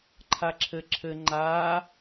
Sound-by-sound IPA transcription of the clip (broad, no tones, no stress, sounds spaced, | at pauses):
ǃʰ a ǁʰ ɘ ǁʰ ɘ ŋ͡ǃ a